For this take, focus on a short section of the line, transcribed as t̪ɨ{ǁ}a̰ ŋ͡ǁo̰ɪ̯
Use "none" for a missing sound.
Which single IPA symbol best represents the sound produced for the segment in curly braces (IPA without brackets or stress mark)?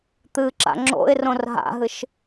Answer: ǁ